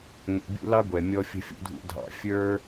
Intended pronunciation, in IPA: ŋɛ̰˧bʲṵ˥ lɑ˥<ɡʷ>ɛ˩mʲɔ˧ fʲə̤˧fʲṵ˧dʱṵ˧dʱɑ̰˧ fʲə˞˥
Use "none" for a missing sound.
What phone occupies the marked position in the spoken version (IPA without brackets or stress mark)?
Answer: ɡʷ